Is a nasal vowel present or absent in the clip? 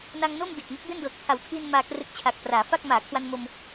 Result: absent